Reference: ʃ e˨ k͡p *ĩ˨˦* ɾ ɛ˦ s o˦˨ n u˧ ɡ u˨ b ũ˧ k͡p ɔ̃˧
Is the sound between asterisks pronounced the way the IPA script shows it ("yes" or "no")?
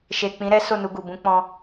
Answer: yes